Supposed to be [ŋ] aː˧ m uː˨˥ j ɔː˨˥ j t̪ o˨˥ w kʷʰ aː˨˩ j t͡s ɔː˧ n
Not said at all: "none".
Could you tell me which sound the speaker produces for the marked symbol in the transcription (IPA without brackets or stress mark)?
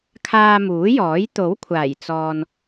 kʰ